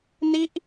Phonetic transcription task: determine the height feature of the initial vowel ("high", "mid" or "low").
high